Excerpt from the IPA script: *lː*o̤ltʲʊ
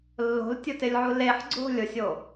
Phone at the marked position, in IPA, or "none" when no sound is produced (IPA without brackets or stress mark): lː